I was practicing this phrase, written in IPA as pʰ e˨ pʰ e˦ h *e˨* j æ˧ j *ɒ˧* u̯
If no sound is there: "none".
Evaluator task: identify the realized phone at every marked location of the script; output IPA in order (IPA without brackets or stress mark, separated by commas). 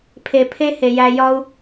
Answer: e˨, ɒ˧